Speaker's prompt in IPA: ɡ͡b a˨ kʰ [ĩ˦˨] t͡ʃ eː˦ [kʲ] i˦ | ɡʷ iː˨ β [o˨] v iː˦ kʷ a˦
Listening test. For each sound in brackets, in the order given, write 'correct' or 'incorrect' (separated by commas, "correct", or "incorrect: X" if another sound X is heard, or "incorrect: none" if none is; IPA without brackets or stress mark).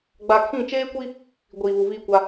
correct, incorrect: kʷ, incorrect: u˨